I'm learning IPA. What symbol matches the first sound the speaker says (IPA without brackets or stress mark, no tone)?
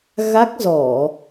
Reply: ɣ